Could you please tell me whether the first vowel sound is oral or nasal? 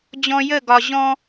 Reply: nasal